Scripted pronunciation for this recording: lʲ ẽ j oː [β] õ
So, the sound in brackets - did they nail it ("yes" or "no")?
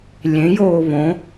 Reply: yes